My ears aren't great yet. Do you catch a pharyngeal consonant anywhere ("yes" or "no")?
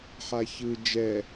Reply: yes